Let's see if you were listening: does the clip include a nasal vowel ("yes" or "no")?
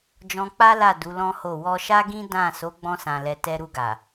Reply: yes